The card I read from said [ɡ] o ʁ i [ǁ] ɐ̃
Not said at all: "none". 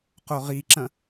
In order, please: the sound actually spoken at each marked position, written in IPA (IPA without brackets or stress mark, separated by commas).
q, ǁ